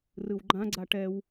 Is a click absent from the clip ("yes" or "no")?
no